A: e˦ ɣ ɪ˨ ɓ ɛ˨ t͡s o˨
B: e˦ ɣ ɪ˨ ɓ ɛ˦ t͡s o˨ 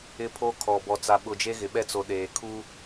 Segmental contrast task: B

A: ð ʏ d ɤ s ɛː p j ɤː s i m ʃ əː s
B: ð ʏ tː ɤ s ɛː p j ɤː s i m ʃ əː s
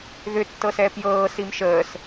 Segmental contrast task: B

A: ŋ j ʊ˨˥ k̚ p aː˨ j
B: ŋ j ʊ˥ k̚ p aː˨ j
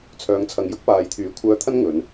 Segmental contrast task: B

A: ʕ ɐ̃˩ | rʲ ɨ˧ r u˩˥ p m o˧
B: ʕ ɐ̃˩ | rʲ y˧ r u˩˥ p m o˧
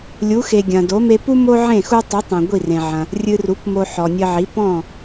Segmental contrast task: A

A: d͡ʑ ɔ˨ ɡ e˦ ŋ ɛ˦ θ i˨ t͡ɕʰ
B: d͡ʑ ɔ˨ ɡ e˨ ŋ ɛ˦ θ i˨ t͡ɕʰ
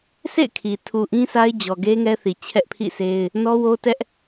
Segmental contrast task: A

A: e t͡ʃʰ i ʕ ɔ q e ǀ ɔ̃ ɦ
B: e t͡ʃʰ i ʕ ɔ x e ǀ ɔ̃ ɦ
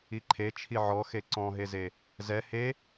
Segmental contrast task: B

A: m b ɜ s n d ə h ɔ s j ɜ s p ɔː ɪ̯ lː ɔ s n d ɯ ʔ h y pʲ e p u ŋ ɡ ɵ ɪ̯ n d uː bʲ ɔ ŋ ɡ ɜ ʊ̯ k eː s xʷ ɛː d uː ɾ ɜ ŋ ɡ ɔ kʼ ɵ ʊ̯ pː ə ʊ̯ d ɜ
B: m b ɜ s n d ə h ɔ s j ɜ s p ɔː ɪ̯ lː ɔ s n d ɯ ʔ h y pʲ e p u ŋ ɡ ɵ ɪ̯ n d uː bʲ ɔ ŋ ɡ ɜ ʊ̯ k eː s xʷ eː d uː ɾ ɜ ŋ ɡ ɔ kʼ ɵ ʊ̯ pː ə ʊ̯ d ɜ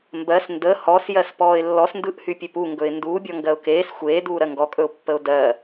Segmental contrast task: B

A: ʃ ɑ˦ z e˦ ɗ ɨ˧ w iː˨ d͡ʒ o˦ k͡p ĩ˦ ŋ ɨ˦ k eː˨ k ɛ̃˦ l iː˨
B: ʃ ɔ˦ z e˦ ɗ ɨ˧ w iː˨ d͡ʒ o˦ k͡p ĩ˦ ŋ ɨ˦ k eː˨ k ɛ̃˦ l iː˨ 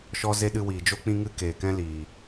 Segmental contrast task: B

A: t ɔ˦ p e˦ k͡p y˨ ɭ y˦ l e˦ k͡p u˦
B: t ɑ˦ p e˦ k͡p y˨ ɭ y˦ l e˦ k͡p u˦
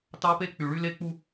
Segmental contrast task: B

